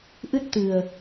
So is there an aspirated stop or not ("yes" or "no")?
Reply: no